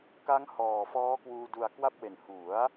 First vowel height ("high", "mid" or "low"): low